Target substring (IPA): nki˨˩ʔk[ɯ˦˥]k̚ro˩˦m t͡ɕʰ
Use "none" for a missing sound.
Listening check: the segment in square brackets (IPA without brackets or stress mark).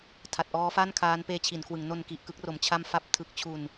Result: ɯ˦˥